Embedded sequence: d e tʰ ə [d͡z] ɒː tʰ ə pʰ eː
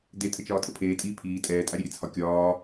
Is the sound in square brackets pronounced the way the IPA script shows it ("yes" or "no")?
no